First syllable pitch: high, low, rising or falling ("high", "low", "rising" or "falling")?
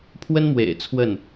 high